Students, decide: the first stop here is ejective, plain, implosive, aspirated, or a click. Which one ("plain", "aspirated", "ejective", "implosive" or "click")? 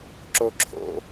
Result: click